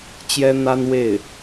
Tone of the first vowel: high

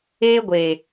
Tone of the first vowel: high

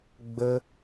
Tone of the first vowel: high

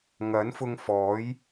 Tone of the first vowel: rising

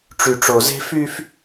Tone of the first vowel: low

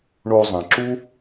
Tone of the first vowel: high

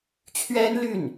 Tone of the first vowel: high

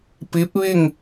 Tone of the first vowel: rising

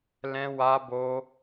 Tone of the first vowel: high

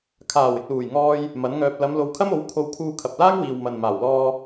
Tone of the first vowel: low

